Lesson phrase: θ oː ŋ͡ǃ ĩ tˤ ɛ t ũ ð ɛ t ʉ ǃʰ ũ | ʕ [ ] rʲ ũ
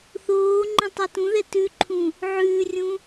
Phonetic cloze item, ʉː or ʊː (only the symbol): ʉː